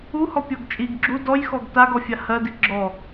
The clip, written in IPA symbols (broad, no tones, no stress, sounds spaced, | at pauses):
u h ɔ pʲ ɔ ɡ t͡ʃʼ i ɡ ɡ͡ǁ u d ɔ j x ɔ ɡ t a ɡ ɔ fʲ a h ɜ d i ɡ͡ǁ ɔ